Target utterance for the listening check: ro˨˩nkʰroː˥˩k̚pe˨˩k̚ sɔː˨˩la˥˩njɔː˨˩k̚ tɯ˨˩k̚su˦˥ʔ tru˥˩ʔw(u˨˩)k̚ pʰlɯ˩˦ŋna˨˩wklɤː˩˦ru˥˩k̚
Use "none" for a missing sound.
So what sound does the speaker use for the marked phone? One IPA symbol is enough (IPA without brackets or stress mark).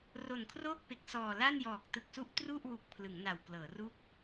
u˨˩